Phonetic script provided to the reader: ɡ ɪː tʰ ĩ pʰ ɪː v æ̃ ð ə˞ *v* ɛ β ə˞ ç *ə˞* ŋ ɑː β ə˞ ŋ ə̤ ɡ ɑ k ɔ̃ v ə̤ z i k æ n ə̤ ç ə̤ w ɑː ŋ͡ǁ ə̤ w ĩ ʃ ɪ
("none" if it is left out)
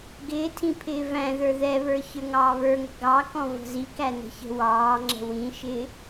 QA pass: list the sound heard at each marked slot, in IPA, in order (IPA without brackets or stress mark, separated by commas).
ð, ə˞